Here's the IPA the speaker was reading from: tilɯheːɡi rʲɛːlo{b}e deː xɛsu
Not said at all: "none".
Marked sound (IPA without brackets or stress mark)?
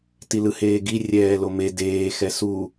m